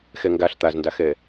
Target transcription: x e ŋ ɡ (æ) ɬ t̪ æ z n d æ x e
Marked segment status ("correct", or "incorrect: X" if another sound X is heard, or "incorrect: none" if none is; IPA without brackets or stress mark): correct